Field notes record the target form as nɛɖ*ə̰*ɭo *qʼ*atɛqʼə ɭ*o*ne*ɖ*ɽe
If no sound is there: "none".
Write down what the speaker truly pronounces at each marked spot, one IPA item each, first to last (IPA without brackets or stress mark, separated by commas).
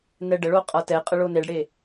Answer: ə, qʼ, o, ɖ